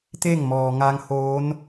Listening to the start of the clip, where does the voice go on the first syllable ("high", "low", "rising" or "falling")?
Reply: falling